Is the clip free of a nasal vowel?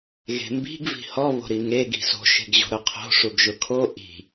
yes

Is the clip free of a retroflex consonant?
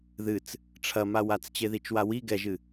no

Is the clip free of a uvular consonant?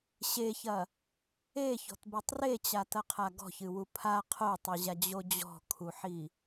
no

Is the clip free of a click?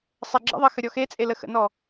no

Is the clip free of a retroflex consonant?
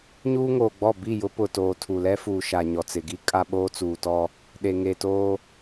yes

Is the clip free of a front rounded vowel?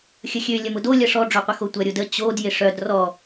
no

